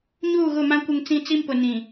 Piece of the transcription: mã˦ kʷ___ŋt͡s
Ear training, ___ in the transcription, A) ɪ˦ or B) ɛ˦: A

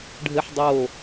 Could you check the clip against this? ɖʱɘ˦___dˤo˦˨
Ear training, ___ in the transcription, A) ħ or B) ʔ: A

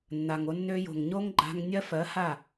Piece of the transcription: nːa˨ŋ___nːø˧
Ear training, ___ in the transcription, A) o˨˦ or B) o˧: B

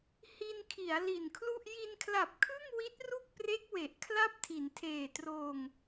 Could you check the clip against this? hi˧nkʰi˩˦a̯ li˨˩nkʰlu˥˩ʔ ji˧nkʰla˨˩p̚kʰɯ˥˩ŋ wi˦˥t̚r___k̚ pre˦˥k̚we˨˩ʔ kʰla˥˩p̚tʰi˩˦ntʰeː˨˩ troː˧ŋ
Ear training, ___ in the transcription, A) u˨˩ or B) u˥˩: B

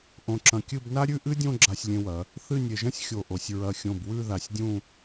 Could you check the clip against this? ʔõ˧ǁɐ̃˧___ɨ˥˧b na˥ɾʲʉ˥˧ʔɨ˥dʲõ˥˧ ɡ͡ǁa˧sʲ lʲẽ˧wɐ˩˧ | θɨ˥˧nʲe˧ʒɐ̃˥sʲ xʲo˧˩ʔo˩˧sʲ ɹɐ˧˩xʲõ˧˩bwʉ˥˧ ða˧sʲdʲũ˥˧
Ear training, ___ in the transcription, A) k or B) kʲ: B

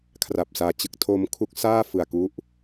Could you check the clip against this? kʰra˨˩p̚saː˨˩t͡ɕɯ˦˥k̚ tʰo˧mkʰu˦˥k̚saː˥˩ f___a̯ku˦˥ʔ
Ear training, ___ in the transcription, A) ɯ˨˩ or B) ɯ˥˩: A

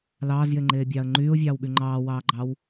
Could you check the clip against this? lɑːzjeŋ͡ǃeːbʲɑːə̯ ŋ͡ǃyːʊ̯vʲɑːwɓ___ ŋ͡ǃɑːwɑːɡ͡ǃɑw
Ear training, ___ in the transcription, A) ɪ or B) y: B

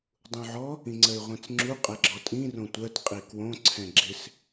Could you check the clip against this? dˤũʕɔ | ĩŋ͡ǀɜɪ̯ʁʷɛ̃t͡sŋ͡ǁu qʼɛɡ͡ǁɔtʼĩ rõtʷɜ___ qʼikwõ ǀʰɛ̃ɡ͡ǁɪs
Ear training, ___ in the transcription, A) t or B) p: A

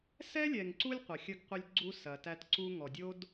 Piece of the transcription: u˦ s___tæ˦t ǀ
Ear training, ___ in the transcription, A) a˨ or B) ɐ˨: B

